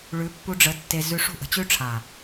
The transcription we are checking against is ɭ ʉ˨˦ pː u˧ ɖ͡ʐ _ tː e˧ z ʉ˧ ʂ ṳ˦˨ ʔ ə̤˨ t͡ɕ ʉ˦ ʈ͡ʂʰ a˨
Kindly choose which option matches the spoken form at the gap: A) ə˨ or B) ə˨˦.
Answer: B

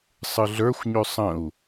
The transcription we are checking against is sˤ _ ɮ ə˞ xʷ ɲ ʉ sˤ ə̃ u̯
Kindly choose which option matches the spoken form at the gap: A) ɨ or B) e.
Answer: A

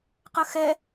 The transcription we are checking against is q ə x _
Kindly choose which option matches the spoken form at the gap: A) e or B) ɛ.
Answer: B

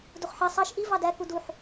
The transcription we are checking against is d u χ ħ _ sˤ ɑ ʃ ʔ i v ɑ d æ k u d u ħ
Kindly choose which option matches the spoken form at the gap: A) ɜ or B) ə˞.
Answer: A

